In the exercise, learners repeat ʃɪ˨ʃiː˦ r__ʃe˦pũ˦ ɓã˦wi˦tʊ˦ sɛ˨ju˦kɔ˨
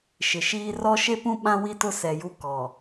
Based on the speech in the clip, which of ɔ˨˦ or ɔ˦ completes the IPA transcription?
ɔ˦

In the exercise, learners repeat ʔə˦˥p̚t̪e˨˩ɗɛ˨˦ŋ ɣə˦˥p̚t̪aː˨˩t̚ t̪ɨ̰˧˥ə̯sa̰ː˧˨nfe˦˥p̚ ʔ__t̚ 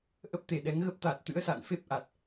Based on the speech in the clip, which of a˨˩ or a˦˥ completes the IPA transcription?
a˨˩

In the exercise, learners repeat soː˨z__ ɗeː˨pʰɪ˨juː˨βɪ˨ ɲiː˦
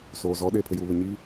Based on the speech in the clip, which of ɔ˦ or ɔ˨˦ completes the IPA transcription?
ɔ˨˦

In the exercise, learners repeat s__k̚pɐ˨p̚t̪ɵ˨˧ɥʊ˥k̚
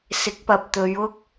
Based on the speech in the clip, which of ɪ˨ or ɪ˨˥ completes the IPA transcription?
ɪ˨˥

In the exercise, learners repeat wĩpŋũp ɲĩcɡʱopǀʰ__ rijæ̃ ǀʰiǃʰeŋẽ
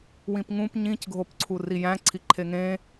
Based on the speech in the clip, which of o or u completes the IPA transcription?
u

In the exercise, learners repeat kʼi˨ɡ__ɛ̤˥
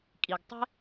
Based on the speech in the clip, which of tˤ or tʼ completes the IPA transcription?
tˤ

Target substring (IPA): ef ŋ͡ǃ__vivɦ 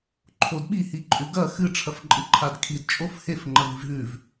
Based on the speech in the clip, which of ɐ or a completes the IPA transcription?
ɐ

